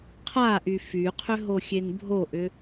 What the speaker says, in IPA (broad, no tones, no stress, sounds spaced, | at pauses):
qʰ a ʔ y f y qʰ ʏ ɦ o xʲ e n bʱ o ʔ ʏ